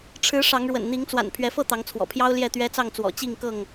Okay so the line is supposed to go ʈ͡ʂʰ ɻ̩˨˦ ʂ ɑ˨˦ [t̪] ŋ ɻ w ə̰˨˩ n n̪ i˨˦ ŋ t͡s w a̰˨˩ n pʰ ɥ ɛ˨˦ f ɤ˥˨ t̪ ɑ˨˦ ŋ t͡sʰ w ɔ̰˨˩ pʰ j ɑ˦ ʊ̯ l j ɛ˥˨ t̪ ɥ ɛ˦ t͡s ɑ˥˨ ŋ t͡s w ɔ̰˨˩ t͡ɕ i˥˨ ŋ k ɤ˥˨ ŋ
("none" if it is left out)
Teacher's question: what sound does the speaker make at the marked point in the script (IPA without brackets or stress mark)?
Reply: none